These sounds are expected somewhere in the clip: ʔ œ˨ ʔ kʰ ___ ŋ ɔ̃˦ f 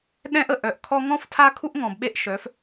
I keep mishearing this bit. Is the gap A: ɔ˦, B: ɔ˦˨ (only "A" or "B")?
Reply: A